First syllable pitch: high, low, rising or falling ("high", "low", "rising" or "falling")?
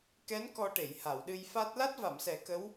rising